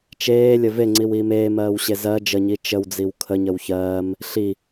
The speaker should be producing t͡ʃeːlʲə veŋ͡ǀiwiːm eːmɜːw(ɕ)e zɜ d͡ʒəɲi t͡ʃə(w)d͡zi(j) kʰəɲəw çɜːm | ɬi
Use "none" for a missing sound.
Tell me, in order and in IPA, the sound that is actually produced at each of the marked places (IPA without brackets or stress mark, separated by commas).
ɕ, w, w